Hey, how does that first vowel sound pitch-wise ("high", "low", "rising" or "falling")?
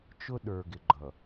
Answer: high